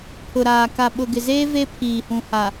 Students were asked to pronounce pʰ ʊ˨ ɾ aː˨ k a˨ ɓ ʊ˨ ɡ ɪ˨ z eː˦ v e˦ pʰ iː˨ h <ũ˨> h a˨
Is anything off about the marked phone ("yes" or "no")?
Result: no